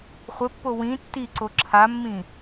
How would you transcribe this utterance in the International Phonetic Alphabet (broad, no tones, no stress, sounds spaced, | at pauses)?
χʷ ɘ pː o w ĩ tː i ǀ o ǁʰ a mː ĩ